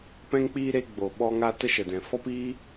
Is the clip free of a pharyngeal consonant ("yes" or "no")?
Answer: yes